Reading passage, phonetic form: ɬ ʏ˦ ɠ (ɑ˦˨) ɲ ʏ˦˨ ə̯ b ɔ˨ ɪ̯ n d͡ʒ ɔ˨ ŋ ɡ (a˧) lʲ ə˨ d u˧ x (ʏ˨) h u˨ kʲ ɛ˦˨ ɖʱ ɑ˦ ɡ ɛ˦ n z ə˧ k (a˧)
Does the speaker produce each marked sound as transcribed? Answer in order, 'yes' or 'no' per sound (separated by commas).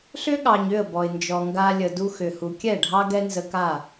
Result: no, yes, yes, no